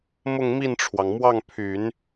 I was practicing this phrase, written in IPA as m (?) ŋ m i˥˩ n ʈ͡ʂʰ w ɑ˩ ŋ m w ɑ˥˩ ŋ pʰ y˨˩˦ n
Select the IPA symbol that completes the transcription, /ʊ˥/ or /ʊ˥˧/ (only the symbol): ʊ˥˧